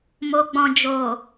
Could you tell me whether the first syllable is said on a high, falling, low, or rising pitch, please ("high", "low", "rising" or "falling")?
low